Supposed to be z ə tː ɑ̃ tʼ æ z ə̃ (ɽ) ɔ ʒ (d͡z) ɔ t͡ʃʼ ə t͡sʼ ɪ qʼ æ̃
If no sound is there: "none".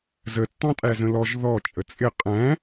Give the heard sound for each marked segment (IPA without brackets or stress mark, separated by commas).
l, ð